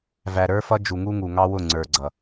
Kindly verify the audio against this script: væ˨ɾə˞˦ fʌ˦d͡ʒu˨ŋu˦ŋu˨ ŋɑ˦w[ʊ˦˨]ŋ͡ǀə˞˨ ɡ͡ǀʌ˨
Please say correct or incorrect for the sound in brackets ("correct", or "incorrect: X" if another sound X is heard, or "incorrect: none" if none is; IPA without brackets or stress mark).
correct